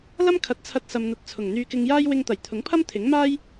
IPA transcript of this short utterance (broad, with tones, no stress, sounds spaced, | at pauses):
l ɐ˥ m kʰ ɐ˨˥ t̚ t͡sʰ ɐ˧ t̚ s ɐ˧ m n̪ ɐ˧ t̚ t͡sʰ ʊ˨˩ ŋ n̪ yː˧ k ɪ˧ ŋ j aː˥ j w ɪ˧ ŋ t̪ ɐ˨˩ j t̪ʰ ʊ˨˥ ŋ pʰ ɐ˥ m t̪ʰ ɪ˨˥ ŋ m aː˥ j